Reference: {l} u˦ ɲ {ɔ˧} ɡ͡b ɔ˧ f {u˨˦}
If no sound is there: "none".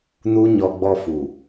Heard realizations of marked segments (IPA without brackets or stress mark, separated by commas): n, ɔ˧, u˨